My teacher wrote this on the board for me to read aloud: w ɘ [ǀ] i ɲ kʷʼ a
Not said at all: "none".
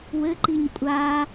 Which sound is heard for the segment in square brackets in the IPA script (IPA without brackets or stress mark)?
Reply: ǃ